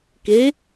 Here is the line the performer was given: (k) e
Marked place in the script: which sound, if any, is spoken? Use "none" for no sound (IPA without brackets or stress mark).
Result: k